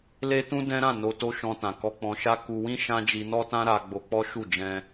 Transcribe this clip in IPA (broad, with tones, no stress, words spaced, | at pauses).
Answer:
le˦tũ˦dɛ̃˦ɾã˦˨ no˧to˦ ʃɔ̃˧tã˨ kɔ˧k͡pɔ̃˧ʃa˦ ku˧wĩ˦ ʃã˦ d͡ʒi˧nɔ˦tã˦ ɾa˧ ɡ͡bo˧k͡pɔ˦ʃu˦˨ d͡ʒɛ̃˧